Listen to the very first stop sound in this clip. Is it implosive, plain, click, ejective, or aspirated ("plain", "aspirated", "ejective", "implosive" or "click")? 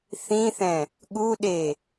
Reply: implosive